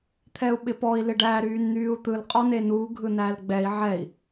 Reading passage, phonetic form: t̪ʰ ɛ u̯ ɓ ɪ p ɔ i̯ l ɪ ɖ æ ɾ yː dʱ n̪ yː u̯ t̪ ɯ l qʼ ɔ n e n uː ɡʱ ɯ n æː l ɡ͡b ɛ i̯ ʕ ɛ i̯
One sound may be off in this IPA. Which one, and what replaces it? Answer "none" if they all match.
dʱ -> n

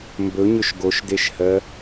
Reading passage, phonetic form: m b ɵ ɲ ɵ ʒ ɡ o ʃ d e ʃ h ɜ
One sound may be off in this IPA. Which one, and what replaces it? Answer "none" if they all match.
ʒ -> ʃ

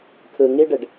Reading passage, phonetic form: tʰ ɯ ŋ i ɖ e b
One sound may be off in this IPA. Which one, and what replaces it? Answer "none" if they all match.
b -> ɖ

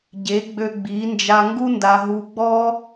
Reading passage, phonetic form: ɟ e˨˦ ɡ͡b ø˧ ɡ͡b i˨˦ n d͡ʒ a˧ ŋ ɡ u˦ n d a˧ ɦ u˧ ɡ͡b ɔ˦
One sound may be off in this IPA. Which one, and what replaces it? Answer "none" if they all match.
none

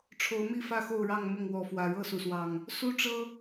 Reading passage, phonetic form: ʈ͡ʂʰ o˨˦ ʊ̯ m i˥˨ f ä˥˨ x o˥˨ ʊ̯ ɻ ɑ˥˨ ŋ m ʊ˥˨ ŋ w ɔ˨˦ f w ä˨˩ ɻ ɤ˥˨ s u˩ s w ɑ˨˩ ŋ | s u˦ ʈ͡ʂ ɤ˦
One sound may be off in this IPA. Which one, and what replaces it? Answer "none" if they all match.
none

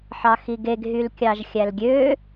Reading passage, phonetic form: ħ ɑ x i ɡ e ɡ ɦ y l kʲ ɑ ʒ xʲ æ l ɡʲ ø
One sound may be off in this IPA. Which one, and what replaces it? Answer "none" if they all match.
none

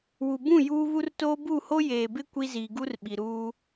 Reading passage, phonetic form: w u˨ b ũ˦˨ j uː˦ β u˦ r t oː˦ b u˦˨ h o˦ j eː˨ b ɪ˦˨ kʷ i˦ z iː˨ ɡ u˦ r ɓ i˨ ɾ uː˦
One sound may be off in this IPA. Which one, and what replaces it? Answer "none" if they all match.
ɪ˦˨ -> ɪ˦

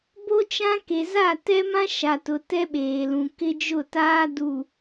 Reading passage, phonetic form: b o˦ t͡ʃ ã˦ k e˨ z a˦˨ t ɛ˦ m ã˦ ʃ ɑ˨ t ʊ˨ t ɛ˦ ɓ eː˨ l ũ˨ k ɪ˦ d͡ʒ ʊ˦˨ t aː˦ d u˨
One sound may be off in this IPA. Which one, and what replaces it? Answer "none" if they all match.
ɑ˨ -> a˨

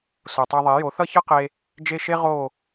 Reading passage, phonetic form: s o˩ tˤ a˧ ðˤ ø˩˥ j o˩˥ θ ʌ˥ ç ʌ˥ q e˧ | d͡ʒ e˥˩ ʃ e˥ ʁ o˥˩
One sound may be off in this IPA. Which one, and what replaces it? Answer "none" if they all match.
ø˩˥ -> e˩˥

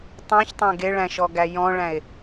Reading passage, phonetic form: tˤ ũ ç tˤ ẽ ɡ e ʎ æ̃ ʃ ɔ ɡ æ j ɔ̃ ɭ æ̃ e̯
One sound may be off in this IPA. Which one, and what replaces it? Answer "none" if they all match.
ʎ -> ɭ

